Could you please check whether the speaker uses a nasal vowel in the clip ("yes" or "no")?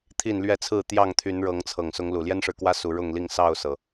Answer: no